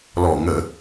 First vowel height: mid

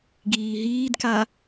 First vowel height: high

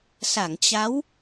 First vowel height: low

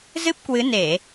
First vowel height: high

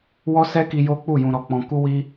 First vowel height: mid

